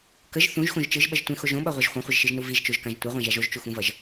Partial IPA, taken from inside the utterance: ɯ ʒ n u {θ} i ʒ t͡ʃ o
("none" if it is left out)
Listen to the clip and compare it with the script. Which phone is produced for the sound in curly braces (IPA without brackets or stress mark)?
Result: v